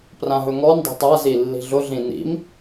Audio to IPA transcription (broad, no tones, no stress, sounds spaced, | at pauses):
p r ã ɦ ɵ ŋ ɔ n dˤ ɛ̤ tˤ a z i lː i̤ ɮ ʊ ɮ ĩ n ḭ m